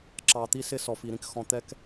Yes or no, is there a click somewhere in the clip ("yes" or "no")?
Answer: yes